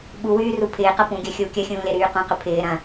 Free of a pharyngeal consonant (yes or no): yes